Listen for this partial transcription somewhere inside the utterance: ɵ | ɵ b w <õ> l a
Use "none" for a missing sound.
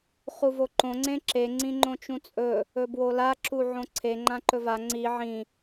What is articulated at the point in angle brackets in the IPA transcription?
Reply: o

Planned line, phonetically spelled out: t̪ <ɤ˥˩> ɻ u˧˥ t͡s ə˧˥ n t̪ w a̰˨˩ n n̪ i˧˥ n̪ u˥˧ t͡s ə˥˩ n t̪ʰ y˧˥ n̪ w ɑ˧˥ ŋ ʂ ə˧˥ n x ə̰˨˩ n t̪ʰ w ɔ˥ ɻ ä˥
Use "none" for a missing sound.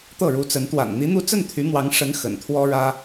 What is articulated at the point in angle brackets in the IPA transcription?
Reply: ɤ˥˩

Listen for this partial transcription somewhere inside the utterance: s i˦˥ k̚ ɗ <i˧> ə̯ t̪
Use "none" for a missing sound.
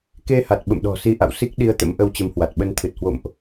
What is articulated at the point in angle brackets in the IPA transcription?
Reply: i˧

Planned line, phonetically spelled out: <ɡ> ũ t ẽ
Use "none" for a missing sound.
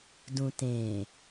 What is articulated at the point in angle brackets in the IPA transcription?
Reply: d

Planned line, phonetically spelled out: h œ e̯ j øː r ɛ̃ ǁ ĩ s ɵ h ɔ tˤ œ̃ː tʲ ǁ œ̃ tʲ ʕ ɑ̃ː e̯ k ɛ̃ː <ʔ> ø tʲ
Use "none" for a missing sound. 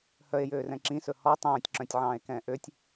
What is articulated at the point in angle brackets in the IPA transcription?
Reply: ʔ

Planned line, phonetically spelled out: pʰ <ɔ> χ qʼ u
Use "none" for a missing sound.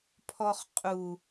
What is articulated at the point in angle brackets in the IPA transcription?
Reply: ɔ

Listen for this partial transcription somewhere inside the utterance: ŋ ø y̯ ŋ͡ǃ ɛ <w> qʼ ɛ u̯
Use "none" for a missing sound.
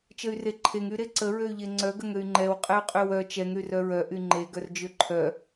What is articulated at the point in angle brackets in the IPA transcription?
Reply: w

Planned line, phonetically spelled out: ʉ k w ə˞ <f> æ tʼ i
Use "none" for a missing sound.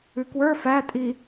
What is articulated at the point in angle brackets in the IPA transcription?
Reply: f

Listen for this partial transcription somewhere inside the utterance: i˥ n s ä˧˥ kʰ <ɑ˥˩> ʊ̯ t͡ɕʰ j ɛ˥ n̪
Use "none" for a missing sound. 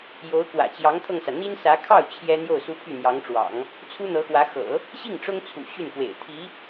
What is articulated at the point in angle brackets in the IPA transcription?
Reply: ɑ˥˩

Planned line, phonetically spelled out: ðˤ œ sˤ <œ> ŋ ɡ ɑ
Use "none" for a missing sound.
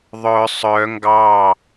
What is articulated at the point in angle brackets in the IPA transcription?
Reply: œ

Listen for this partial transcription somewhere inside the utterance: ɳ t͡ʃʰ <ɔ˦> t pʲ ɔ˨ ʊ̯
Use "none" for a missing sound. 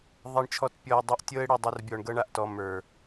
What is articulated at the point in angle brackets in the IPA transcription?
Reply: ɔ˨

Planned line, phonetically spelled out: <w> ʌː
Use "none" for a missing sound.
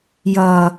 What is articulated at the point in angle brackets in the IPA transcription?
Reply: j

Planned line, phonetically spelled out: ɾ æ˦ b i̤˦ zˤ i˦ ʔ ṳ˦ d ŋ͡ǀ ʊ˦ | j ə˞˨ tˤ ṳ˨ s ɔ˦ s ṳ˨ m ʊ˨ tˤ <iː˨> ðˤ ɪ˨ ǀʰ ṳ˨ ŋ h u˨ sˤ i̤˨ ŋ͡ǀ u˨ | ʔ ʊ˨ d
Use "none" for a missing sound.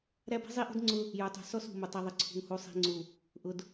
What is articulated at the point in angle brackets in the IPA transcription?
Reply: i˨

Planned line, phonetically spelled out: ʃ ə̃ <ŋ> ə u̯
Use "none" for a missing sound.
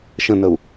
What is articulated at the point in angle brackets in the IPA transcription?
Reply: n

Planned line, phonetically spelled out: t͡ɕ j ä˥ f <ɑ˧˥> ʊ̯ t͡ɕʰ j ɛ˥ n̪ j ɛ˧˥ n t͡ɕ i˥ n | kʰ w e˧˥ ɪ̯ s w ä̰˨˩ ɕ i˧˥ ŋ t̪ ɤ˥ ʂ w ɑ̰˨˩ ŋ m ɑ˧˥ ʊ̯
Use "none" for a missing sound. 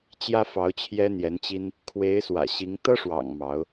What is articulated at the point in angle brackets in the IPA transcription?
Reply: ɑ˧˥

